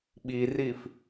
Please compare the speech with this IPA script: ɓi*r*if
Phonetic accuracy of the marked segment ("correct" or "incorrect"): correct